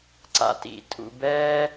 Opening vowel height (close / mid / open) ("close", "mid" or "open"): open